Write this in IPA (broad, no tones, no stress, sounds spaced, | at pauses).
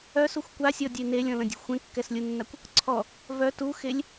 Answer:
œ s u xʷ kʷ a sʲ ɔ dʲ e n e lʲ ɔ̃ l ə̃ dʲ ṳ xʷ ẽ kː ɛ s lʲ u nː a kʷ | ǀʰ ɔ | v œ t u x e lʲ